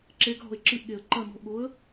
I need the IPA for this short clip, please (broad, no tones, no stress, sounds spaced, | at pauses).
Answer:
ǁ e ɡ ɦ ɔ̤ ɪ̯ ǁ ɨ ʔ ɠ e ə̯ ǃ ɐ n ɔ̤ ʔ ɠ o ə̯